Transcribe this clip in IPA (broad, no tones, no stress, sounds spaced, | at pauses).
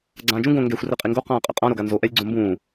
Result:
ɡ͡ǀ ãː d͡ʒ ũ ɡ õ ŋ ɡ ɛ xʷ r ɛ qʼ i ŋ ɡ o q ãː qʼ ɛ̰ qʼ ã ɾ o ɡ a n z o ʔ ɛ lʲ ɡ͡ǀ õ m b ũː